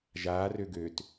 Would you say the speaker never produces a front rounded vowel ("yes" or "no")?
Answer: no